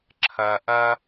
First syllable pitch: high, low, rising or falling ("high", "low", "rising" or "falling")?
low